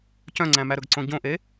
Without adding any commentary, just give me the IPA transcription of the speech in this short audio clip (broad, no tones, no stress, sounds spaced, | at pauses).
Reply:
c œ̃ ŋ͡ǀ æ̃ m æ ɾ ɵ ɡ ǀ õ ɟ õ ʔ e